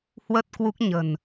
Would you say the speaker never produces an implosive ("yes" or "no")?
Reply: yes